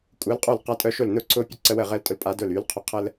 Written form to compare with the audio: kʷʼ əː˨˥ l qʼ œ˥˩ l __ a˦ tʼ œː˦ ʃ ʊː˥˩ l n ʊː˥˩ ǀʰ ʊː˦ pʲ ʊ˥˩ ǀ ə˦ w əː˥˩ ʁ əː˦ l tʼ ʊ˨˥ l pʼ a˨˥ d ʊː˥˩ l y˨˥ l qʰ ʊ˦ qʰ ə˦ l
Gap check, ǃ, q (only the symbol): q